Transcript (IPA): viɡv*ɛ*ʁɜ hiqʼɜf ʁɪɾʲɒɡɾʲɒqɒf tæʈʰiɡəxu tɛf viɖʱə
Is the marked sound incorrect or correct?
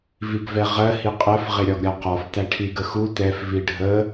correct